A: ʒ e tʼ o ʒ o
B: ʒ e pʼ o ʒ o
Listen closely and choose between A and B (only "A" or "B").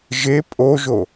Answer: B